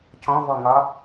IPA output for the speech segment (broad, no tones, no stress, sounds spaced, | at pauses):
c ɔ̃ v ɔ ŋ ɒ